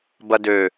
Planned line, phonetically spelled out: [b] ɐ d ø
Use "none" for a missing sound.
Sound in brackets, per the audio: b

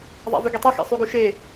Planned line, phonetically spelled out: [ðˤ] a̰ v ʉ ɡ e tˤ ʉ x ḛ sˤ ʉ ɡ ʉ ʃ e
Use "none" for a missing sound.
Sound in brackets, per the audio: ðˤ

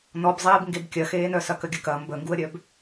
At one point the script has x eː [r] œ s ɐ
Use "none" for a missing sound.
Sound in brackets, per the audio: n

